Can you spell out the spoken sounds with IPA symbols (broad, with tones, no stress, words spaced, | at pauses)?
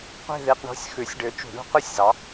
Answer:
qʷi̤˥˧ ði˧˥˧qɳo̤˧˥˧sʲ xʉ˨˩˦sʲɖø˨˥ t͡ʃṳ˨˩˦ɳṳ˨˥ qʉ˥˧sʲzɑ˨˥